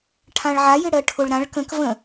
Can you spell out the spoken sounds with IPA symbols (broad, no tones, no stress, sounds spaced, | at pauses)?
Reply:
ʈʰ ã ɭ ʕ a j ɪ ɽ ɜ ʈʰ ʊ ɭ ɾ ã ɭ k ə̃ k v ə̃